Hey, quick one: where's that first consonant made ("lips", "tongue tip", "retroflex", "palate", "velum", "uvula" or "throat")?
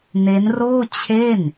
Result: tongue tip